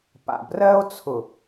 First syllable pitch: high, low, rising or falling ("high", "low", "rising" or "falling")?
low